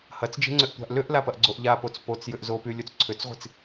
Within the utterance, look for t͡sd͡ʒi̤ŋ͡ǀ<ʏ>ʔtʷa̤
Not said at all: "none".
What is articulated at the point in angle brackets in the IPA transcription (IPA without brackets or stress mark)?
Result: ʏ